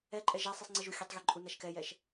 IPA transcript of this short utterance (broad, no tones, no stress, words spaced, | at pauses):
ɛǃʼɛ ʒasˤisˤŋ͡ǀiʒu xʲɛtˤɣiǃʼunaʃ kɛjɛʃ